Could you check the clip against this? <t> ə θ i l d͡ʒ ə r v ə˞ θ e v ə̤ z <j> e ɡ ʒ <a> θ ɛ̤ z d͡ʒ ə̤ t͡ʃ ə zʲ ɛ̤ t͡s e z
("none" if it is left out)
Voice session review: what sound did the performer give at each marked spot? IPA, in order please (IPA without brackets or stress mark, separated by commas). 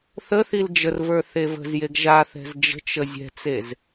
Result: θ, j, a